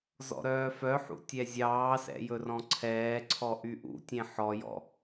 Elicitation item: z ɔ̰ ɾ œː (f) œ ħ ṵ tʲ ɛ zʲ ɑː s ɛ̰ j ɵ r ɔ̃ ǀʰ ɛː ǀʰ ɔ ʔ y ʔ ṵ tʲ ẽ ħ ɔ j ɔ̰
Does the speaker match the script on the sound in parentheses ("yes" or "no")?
yes